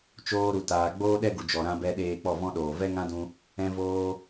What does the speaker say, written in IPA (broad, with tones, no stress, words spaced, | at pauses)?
t͡ʃoː˧ɾu˨taː˨ ɡ͡boː˦ ɗɛ˦ɡu˨ d͡ʒɔ˨ɾã˧bɛ˧ ɗeː˧k͡pɔ˦˨vɔ̃˦ ɗoː˨ vɛ˦ŋã˦dũ˧ | ɛ̃˧voː˧